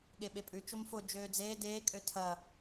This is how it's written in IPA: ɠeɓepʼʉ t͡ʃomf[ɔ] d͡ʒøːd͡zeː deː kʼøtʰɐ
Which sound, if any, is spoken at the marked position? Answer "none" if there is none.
o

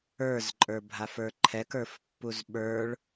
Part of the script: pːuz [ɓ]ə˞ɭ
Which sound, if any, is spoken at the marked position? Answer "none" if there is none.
ɓ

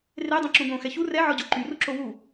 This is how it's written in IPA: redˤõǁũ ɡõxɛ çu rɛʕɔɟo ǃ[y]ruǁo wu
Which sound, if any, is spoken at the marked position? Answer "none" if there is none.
y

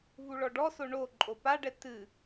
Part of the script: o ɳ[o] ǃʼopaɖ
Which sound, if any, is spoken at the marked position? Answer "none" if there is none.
o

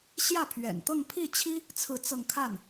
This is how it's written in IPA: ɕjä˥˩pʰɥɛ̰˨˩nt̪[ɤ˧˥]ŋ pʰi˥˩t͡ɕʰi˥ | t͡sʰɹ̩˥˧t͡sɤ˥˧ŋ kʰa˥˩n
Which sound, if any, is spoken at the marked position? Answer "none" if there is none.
ɤ˥˧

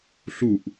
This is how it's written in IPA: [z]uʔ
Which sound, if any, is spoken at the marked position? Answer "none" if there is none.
ɬ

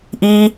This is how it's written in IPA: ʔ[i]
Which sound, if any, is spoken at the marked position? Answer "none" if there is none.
iː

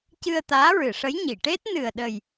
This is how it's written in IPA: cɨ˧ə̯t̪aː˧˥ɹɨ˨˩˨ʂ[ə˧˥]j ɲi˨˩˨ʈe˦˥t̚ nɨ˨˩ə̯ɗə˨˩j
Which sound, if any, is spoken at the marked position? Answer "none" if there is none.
ə˧˥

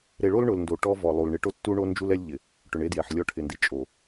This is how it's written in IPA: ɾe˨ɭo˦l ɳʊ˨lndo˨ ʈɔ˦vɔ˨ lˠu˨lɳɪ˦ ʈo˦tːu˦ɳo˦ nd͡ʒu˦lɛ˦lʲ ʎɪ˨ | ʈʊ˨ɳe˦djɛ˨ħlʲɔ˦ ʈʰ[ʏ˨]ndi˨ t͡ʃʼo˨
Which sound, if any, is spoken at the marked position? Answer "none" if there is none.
ɪ˨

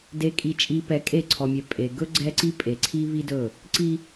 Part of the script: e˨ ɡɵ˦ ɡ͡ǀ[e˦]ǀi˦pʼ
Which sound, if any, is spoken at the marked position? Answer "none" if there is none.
ɛ˦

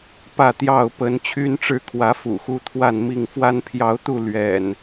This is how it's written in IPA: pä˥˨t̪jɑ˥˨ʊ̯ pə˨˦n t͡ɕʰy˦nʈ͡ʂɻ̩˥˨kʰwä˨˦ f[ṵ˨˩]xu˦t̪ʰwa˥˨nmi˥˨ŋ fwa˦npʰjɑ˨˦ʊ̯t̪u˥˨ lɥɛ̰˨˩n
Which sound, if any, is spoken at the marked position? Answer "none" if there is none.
ṵ˨˩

